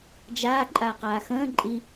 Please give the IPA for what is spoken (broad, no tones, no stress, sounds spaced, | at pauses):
d͡ʒ aː ǃʼ aː q aː x ə̃ː ǃʼ i